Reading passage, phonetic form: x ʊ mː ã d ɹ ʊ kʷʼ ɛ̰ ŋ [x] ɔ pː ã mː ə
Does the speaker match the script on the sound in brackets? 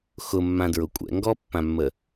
no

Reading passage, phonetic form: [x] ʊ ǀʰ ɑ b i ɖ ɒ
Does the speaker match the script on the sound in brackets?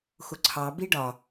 yes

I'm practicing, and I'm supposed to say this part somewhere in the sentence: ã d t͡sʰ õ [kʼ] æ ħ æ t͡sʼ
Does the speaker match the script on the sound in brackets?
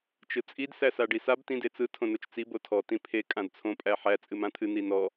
no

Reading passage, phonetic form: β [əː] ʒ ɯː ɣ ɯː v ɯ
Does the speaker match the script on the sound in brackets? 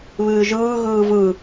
no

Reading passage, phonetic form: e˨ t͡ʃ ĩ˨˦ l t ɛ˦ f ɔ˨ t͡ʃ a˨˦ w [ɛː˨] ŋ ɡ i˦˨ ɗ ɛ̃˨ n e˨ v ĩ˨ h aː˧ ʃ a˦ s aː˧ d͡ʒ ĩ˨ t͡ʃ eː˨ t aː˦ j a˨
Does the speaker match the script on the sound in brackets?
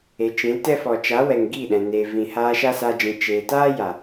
no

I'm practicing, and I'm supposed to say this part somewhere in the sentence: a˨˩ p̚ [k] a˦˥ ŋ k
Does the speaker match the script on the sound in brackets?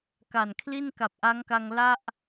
no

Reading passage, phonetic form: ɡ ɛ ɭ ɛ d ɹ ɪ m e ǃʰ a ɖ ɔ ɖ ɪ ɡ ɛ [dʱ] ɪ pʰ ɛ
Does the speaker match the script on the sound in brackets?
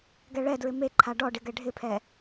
no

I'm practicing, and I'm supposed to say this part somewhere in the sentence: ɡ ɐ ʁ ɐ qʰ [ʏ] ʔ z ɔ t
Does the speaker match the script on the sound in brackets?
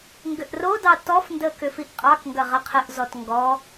no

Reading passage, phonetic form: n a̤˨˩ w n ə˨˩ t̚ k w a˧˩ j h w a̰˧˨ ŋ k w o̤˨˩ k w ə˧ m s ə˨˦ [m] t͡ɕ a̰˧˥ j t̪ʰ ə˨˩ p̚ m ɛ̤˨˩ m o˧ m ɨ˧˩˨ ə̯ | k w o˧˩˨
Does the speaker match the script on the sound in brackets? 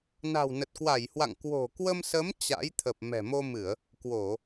yes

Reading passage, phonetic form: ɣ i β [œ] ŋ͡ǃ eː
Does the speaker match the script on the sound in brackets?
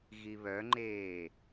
yes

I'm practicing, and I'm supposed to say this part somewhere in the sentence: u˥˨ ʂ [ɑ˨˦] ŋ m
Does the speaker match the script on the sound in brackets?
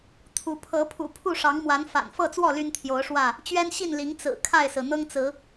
yes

